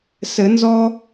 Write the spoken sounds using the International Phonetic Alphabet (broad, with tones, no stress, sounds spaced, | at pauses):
s ɘ˨˩˦ n z ɔ˦